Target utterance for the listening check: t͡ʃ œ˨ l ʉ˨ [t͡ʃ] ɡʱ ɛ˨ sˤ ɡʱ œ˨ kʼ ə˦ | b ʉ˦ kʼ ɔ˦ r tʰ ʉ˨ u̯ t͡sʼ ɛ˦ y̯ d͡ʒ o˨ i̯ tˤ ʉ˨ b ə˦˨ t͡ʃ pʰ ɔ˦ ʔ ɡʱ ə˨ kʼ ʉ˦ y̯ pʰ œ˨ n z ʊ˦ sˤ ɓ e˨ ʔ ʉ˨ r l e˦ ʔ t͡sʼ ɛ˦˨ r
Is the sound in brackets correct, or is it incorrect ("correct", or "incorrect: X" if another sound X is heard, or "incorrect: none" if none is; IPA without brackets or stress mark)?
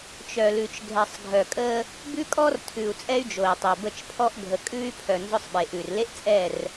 correct